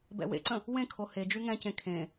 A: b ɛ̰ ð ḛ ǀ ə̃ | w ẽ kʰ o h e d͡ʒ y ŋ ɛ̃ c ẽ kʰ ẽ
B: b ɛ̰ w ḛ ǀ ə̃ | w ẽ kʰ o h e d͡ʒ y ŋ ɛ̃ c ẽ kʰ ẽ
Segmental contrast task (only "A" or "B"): B